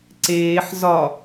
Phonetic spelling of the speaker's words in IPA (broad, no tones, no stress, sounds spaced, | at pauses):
ǀ eː ħ z ɒ